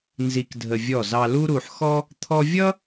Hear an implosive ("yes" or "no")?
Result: no